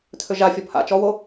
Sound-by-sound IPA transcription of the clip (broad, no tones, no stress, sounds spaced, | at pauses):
tʰ ø ʒ a fʲ ɔ p h a̰ t͡ʃ ɔ w o